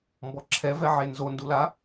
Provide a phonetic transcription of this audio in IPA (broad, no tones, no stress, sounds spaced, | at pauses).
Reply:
m b ɔ ǁʰ ɛ v ɛ ʕ e n z o n d u l a